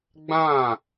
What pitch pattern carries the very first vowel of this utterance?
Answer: falling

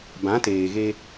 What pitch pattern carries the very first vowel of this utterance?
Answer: rising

